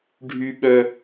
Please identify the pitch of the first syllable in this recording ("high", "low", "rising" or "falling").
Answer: high